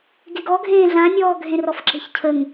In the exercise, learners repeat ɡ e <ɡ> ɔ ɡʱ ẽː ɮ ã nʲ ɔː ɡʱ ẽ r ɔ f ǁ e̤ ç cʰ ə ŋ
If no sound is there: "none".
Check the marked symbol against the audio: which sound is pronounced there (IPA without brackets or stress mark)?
ɡ